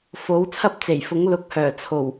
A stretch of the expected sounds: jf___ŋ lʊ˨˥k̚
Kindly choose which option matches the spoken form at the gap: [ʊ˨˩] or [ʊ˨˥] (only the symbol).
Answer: ʊ˨˥